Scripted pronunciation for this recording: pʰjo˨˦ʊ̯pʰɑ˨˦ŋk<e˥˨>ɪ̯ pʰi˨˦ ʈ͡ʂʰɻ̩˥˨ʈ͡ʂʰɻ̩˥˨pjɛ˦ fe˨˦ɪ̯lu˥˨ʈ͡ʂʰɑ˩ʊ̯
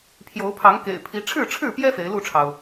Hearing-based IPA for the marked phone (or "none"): ḛ˨˩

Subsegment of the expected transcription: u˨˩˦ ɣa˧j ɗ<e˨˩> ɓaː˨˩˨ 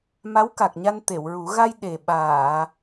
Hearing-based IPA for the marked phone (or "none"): e˨˩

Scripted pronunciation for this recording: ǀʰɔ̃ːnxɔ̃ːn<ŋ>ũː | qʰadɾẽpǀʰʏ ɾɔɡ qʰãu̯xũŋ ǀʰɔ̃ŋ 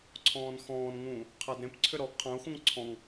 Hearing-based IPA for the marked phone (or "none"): ŋ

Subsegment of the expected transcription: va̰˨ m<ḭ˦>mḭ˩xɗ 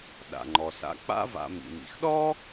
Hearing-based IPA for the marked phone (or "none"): ḭ˩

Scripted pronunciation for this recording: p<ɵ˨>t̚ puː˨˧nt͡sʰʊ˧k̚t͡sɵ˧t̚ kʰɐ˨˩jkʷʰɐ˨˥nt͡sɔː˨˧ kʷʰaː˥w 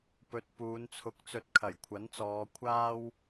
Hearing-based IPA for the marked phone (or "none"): ɵ˨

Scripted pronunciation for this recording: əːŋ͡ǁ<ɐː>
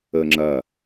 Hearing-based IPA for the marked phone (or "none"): ɐː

